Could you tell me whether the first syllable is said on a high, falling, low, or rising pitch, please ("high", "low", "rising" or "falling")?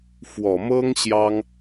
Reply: low